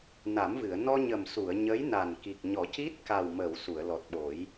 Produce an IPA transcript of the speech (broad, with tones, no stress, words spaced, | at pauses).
na˨˩˦mvɨ˨˩˨ə̯ nɔ˧ɲə˨˩m su˨˩˨ə̯ ɲə˧˥jna˨˩n ki˨˩k̚ɲɔ˨˩˦ci˦˥t̚ ka˨˩wmə˨˩˨w su˨˩˨ə̯lɔ˨˩t̚ɓo˨˩˦j